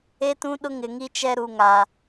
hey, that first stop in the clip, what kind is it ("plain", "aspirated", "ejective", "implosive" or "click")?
plain